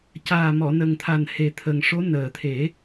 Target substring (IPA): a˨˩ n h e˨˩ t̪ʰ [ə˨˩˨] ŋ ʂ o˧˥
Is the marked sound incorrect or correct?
incorrect